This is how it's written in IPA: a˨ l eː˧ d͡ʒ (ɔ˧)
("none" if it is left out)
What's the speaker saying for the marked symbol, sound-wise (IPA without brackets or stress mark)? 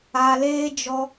ɔ˧